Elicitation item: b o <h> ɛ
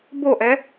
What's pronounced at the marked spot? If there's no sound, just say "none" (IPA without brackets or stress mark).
ʔ